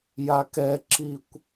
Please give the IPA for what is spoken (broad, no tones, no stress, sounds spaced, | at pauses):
j a k ɛ ǁ i kʷ